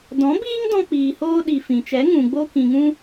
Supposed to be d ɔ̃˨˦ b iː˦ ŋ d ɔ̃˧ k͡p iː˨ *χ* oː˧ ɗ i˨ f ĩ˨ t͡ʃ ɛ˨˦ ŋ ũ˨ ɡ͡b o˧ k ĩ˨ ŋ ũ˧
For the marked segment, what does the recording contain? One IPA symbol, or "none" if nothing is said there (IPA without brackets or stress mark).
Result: h